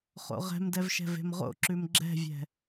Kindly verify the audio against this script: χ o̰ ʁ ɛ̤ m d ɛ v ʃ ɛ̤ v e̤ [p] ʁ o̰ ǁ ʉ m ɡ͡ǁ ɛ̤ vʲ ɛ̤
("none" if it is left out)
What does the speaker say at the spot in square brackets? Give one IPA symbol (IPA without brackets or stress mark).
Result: m